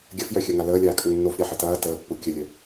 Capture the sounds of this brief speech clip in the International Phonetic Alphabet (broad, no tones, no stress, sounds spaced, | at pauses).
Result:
ɡʲ ɐ f j œ xʲ œ ŋ a l əː lʲ aː kʼ ə ŋ nː o f ɾʲ a ħ ə t ɐː t əː pː u kʲ ə lʲ œ